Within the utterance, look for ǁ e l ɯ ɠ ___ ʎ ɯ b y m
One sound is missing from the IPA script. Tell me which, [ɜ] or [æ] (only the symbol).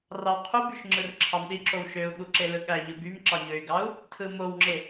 æ